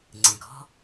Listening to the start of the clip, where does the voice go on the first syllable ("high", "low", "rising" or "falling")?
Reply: low